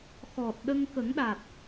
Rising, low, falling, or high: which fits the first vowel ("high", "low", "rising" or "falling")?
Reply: low